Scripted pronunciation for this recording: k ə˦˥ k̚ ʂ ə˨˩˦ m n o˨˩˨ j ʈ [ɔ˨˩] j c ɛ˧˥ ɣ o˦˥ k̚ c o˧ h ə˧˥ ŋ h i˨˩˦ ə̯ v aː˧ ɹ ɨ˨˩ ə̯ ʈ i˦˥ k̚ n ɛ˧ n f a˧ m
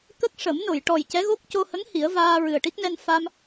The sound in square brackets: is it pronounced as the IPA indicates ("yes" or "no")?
yes